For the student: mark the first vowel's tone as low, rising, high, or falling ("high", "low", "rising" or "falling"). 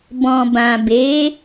low